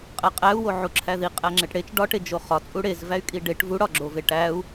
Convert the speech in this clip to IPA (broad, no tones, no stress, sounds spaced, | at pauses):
qʼ æ qʼ æ u̯ w o ʕ u ǁʰ æ ð i qʼ æ ŋ͡ǁ e ʈ ɽ e t͡ʃ ɖ ɒ ʈ e d͡ʒ o χ ɒ t͡sʼ u ɽ e z v æ y̯ kʼ i ɖ e ʈ v u ɽ ɒ ɡ͡ǁ o v e ʈ æ u̯